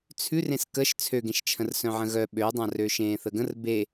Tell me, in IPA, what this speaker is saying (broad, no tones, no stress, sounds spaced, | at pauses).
t͡sʰ ʉ r ẽ s k ə ʃ t͡sʰ ø ɡ ẽ ʃ t͡ʃʰ ə̃ r s œ̃ ʕ ə̃ ɣ œ ɓ ø ɪ̯ dˤ ã r ø ʃ ẽː θ ə ɡ ə̃ r b e